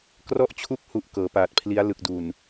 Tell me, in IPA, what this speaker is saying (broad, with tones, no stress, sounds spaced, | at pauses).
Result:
k r ɔ˦˥ ʔ t͡ɕʰ u˦˥ k̚ h u˨˩ ʔ k ɤː˩˦ p aː˨˩ t̚ pʰ l i˦˥ a̯ l ɯ˨˩ k̚ d u˨˩ n